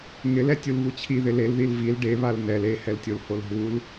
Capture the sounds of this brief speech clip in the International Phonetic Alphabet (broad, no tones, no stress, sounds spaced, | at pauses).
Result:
ŋ ɪ l ɛ tʲ u l β u t͡ɕʰ i ð ɪ l e l ð i l v i l ɖ e β a l n ɛ l e h ɛ l tʲ o l h o l ɦ u l